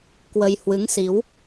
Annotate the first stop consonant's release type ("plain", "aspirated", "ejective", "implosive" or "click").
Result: plain